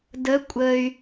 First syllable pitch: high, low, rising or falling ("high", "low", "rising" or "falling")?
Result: rising